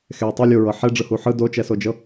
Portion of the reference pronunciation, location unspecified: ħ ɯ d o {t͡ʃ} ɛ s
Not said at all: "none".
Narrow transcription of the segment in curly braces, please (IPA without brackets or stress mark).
t͡ʃ